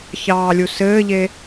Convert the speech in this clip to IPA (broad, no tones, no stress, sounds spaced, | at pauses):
ç ɑː lʲ u s ɘː ʎ e